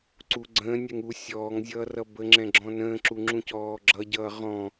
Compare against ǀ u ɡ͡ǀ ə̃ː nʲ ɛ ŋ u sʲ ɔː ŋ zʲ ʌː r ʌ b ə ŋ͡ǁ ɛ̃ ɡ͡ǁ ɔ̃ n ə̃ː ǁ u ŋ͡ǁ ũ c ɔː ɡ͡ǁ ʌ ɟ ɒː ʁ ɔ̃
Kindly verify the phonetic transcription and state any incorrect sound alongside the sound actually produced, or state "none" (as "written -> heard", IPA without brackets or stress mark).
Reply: ɒː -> ʌː